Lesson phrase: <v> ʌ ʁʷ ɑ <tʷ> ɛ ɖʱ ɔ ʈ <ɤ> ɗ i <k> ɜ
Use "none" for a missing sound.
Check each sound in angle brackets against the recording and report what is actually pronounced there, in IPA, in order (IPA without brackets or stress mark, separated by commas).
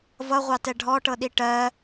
v, t, ɤ, ʈ